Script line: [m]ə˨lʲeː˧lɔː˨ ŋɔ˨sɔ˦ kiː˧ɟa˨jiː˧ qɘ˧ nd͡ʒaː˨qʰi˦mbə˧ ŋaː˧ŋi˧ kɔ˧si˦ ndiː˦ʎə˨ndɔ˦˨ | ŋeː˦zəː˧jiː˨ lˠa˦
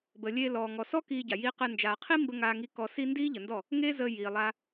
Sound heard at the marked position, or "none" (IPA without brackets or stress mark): b